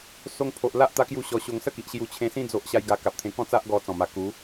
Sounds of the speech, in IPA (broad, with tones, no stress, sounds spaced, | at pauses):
s o˧ ŋ pʰ o˨ ʔ l a˦ ʔ t̪ a˦ k j u˥˧ ɕ ɔ˧ ɕ o˧ ŋ s ə˦ k i˨ ʔ ɕ j u˧ t͡ɕʰ ẽ˧ s ĩ˦ d͡z o˦ ʔ ɕ a˦ j ɡ a˧ k a˨ p̚ t̪ʰ ẽ˧ k ɔ̃˥˧ t͡s a˦ ʔ ɡ ɔ˧ t͡s ɔ̃˨˩ m a˨˩ k u˨˦